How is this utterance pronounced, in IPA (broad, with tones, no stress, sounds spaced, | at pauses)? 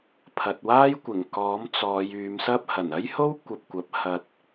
pʰ ɐ˨ t̚ w aː˥ j kʷ ɪ˨˩ ŋ k ɔː˨˥ m t͡s ɔː˨˧ j yː˨˧ m s ɐ˥ p̚ h ɐ˨˩ n ɐ˥ j h o˥ w kʷ ɐ˧ p̚ kʷ ɐ˨˥ p̚ h ɐ˧ t̚